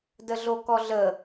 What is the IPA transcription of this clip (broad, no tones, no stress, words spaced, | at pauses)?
dəɮokɔɮə